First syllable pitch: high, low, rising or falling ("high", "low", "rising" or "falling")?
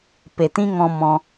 low